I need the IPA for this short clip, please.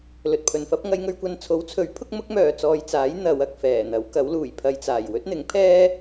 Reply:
l ɵ˨ t̚ pʰ ɵ˨ n f ɐ˥ p̚ ŋ ɐ˨˧ j ŋ ɵ˧ ɥ kʷ ɐ˧ n t͡sʰ o˨˥ w t͡sʰ ɵ˨˥ ɥ pʰ ʊ˥ k̚ m ʊ˥ k̚ m œː˨ t͡s ɔː˨ j t͡s aː˨˥ j n̪ ɐ˨˧ w ɐ˨ k̚ f ɛː˨˩ n̪ ɐ˨˥ w k ɐ˨˥ w l uː˨˩ j pʰ ɐ˧ j t͡s aː˨˩ j w ɵ˥ t̚ n̪ ɪ˨˥ ŋ pʰ ɛː˥

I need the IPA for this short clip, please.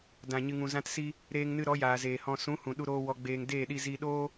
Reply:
d ã˨ ɲ ɨ˨ ŋ ũ˨ z ã˧ t s i˧ | ɾ eː˧ ŋ n ɨ˧ ɾ ɔ˨˦ j aː˨ z eː˨ h ɔ̃˨ s ũ˨˦ h ũ˨ ɗ u˧ ɾ oː˧ w ɔ˧ ɡ͡b eː˧ ŋ d eː˦˨ ɗ i˧ z i˧ ɗ oː˦

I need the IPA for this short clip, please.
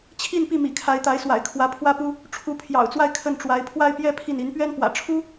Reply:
t͡ɕʰ i˥˧ n p i˥˩ m ḭ˨˩ kʰ a˧˥ ɪ̯ t̪ a˧˥ ɪ̯ s w a̰˨˩ ɪ̯ kʰ w ä˧˥ pʰ w ä˥ p u˥ | ʈ͡ʂʰ u˧˥ pʰ j ɑ̰˨˩ ʊ̯ t͡s w a˥˧ ɪ̯ kʰ ə˥˩ n ʈ͡ʂ w a˧˥ ɪ̯ pʰ w a˥˧ ɪ̯ p j ɛ˥˧ pʰ i˥˩ n i˧˥ n p ɥ ɛ˥ n p w ä̰˨˩ ʈ͡ʂʰ u˥

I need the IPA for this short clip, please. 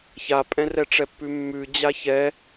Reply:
ç a pʼ ɛ̃ r ɛ ʈ͡ʂ ɛ pː ʉ mː ʉ d͡ʑ a ç ɛ

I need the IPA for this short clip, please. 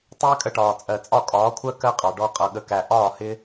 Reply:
tˤ ɪː˦ kʼ ə˧ ʈ ɒː˨ t͡sʼ ɜ˨ t͡sʼ ɒ˦˨ kʼ ɒː˨˦ kʷʰ ɜ˦ k ɜ˦ qʼ ɑ˨ ɖ ɔ˧ qʼ ʌ˨ ɠ ə˨ k æ˨ ʔ ɒː˦˨ h ɪ˦

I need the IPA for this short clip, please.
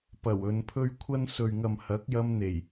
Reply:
p ɐ˨˩ w ɵ˨˧ n pʰ ɵ˥ ɥ kʷʰ ɐ˥ n s ɵ˨ ɥ ŋ ɐ˨ m h ɐ˨˥ k̚ j ɐ˧ m n̪ e˨˩ j

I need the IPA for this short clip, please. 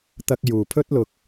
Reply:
t̪ ɐ˧ k̚ j uː˨ pʰ ɵ˥ t̚ l ʊ˧ k̚

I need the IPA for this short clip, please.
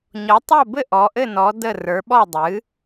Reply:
ɲ ɔ˩˥ tˤ o˥˩ b ɘ˥˩ ʔ ɔ˩˥ ʔ ɘ˥˩ n ɔ˩˥ d ə˥˩ r ə˞˩˥ ɓ ɔ˥˩ dˤ ɨ˩˥

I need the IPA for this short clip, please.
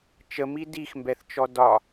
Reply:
t͡ʃ ə m i d i x m b ɛ θ t͡ʃ ɔ d ɒ

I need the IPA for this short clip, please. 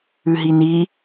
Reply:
ʉ ɦ i n i

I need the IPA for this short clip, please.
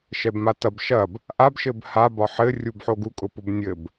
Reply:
ʃ ɛ b m a t ɐ b ʃ ɐ b | ʔ a b ʃ ɘ b h a b ɒ ħ ɘ rʲ u b ħ o ɡ u kʼ ʊ p ʊ b nʲ ɘ b

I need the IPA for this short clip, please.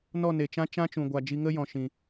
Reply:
n ɔ˦˨ n e˨ t͡ʃ ã˦ t͡ʃ ã˦ t͡ʃ ũ˨ ɡʷ a˨ d͡ʒ i˧ ŋ ə˦ j ɔ̃˨ ʃ ĩ˨

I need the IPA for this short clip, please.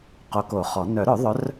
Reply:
q o˨˦ k o˨˩˦ χ ɔ˨˩˦ n œ˨˩˦ ɾ œ˨˩˦ ðˤ œ˨˦ r

